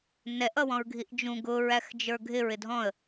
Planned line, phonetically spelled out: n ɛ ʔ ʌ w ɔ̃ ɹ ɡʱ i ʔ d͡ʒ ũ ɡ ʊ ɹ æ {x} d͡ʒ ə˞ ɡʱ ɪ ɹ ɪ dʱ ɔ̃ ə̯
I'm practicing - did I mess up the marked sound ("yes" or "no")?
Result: no